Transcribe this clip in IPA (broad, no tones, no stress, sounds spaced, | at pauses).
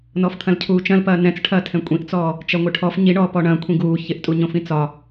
n ɔ f t̪ʰ ɐ̃ l cʰ uː t͡ʃ ɐ̃ l p ɐː n ɛ̃ t͡s ʈʰ ɐː tʰ ɛ̃ kʷʼ ĩ ʔ t͡s ɔː | t͡ʃ ɐ ŋʷ ɪ ʈʰ ɔ f ɲ i ɳ ɔː p ɔ ɳ ɐ̃ kʷʰ ĩ ɡ uː ç ɪ ʔ tʼ u ɲ õ f ĩ t͡s ɒ